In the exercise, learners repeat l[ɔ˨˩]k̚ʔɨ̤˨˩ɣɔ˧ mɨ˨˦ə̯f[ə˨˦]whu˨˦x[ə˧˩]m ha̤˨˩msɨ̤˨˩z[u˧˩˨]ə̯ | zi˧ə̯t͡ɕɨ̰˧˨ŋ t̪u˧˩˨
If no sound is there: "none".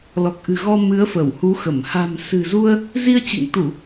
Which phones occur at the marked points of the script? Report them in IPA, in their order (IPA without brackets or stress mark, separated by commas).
ɔ˨˩, ə˧˩, ə˧˩, u˧